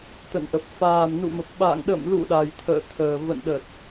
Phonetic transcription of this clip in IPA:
t̪ə̰˧˨nʔə˨˩p̚ faː˨˩mnṵ˧˨mə˨˩p̚ ɓa̰ː˧˨ŋ ɗə̰˧˨mlṵ˧˨ ɗa˨˩jt̪ʰə̰ː˧˨t̪ʰəː˨˩ və̰˧˨nɗə˨˩t̚

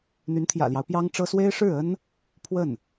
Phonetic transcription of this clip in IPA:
n̪y˧˥nt̪ʰjä̰˨˩ljɑ˦ʊ̯ pjɑ˥ŋʈ͡ʂɤ˥ swe˥ɪ̯ ʂɻ̩˥˩ə˥n | pʰwə˥˩n

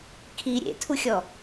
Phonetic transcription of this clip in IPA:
kʰi ɾʲḛtʰuxʲɔ

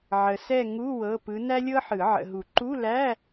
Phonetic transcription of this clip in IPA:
ʕə˨sɛ˦˨ ŋu˧˥˧ wɤ˧˥˧pɯ˧˥ næ˥lʲɤ˥ħɯ˨˩˦ ʕə̰˨ɦu˨˩˦ ǃu˧˥˧læ˧˥˧

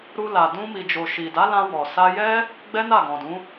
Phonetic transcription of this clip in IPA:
ɾu˧ la˨ dũ˧mi˨d͡ʒo˨ ʃi˨da˨˦lã˧ wɔ˨sa˧jɛ˦ | ɡ͡bɛ˦na˦˨ɡɔ̃˨dũ˨˦

